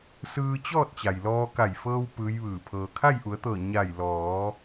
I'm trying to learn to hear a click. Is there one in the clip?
no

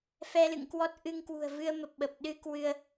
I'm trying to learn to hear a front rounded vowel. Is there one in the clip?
no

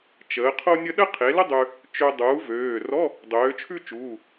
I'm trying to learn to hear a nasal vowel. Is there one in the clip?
no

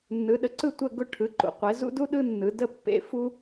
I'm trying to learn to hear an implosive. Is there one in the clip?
yes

